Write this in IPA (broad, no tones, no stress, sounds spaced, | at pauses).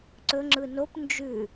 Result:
ǀ ɵ ŋ͡ǁ ɯ n o p n d͡ʒ ʉ